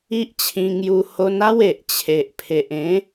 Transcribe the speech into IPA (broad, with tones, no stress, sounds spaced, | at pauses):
i˦ ʔ t͡ɕʰ ĩ˧ ŋ j u˧ h o˧ n a˦ w e˨ ʔ t͡ɕʰ e˨ ʔ pʰ e˨ ʔ ẽ˨˦